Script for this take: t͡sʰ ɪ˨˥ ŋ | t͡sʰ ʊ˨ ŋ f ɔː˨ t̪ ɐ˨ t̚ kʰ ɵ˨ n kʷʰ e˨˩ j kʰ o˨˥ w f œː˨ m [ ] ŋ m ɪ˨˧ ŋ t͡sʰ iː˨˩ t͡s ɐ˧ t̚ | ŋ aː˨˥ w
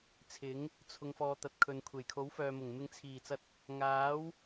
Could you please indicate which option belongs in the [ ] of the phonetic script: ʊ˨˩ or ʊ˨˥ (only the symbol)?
ʊ˨˩